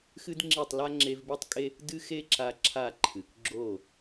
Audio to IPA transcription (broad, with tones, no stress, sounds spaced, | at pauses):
x ɨ˦ d ŋ͡ǁ i˦˨ tˤ l a˦ ŋ͡ǁ e˧ v b i˦ tˤ kʼ e˦ | d ɨ˦ x e˦ ǁ a˧ ǁʰ a˦˨ ǃʰ ɨ˨ k ɡ͡ǁ o˦˨